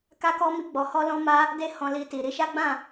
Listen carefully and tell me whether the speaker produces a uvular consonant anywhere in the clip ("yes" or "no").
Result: no